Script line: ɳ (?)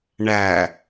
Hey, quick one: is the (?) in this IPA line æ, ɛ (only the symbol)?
æ